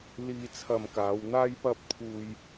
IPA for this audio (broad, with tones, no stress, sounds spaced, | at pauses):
l iː˧ t͡sʰ ɐ˧ m k aː˨˧ w n̪ aː˥ j p ɐ˥ p̚ t̪ʰ uː˧ j